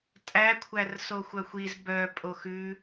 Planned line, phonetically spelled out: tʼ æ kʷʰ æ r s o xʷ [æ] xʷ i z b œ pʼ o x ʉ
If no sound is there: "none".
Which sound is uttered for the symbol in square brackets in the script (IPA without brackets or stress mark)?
œ